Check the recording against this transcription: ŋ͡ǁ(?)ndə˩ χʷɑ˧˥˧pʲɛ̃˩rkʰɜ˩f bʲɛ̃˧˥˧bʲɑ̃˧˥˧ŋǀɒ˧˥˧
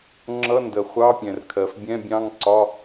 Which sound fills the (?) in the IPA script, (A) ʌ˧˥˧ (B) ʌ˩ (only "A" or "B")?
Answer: A